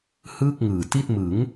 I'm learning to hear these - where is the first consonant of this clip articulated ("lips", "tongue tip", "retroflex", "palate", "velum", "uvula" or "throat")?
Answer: throat